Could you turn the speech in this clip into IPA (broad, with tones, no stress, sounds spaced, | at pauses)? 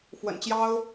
f w ə̰˨˩ n t͡ɕ j ɑ˦ ʊ̯